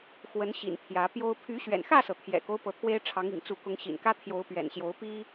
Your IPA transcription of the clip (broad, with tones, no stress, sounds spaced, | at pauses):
x w ə˨˦ n ɕ ḭ˨˩ n pʰ j ä˨˦ p j o˦ ʊ̯ pʰ y˨˦ ɕ ɥ ɛ̰˨˩ n x ä˥˨ s ɤ˩ t̪ʰ j ɛ̰˨˩ k o˦ ʊ̯ p ɤ˨˦ t̪ʰ w e˦ ɪ̯ ʈ͡ʂʰ ɑ˨˦ ŋ ḭ˨˩ ŋ t͡s u˨˦ k ʊ˨˦ ŋ ɕ ḭ˨˩ n k ä˦ t̪ʰ j o˨˦ ʊ̯ p ɥ ɛ̰˨˩ n ɕ j o˨˦ ʊ̯ p i˦